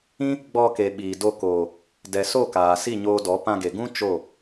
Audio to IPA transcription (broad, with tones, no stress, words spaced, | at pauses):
ĩ˦ | ɡ͡bɔ˧ke˨ɓiː˨do˧ koː˨ | dɛ˨so˦˨ kaː˨si˦˨ɲoː˧dɔ˨˦ pã˧ɡe˨ɡũ˦ t͡ʃo˦˨